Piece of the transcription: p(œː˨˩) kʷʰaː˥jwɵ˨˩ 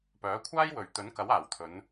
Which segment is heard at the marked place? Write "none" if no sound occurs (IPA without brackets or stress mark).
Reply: œː˨˥